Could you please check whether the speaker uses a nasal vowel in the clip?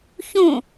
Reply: yes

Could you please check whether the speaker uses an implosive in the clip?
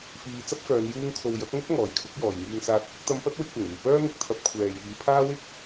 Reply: no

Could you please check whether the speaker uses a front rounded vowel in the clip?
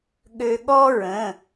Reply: yes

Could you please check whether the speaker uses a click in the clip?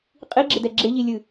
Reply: yes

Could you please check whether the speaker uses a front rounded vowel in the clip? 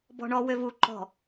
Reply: yes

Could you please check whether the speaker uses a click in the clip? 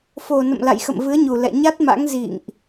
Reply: no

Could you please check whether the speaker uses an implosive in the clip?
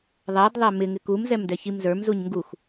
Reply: no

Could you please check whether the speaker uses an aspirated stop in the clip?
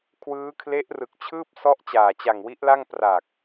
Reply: yes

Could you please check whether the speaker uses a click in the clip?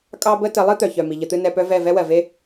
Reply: no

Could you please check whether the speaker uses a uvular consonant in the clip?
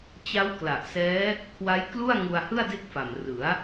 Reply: no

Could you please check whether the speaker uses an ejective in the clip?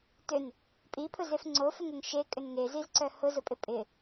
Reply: yes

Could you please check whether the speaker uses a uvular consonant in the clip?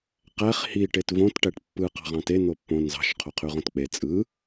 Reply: yes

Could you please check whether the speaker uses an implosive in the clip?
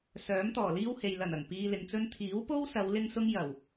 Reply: no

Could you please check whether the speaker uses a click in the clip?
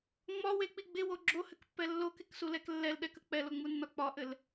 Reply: yes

